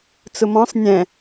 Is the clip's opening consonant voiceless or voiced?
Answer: voiceless